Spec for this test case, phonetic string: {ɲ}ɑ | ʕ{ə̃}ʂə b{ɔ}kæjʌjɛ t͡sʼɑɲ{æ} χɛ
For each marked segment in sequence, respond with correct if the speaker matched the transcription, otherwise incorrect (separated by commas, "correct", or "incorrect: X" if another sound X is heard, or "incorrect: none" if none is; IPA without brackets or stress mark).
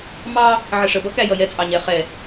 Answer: incorrect: m, incorrect: ə, incorrect: ʌ, incorrect: ɛ